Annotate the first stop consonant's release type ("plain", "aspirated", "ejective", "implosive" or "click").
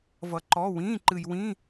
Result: click